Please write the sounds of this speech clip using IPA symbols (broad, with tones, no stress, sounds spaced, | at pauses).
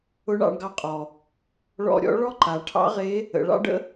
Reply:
ʊ˧˥ ɳ ɑ̰˧ ɳ ɡ ɑ˧ qʼ ɔ˩ | ɭ ɔ̰˧ ɾʲ ɔ̰˧˥ ɭ ɔ˥ ǃ a˩˧ ʈʰ ɑ̰˧˥ ʁ e˧˥ | ə̰˩˧ ɭ ɑ̰˥ ɖ ə̰˥